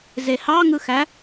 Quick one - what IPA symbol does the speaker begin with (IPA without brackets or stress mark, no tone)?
z